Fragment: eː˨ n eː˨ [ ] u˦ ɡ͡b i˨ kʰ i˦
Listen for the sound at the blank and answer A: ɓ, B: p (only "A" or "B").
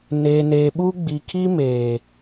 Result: A